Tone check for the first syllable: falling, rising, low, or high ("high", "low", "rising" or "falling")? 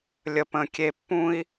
low